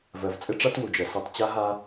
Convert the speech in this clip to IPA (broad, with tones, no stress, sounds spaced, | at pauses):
v ɜ˨ v t͡sʼ ɪ˦ ʈ͡ʂ a˦ t w u˨ d͡ʒ ɜ˨ s ɛ˦ tˤ t͡ɕ a˦ ɦ a˦